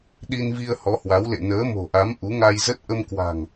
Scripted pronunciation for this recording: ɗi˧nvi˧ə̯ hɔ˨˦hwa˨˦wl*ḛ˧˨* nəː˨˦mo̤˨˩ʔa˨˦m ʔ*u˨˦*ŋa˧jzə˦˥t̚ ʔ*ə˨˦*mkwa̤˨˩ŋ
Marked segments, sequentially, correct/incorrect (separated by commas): correct, correct, incorrect